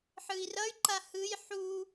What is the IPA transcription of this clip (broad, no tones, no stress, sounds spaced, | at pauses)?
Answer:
ħ ɯ i̯ r ʌ y̯ ǃ a h ɯ j ħ u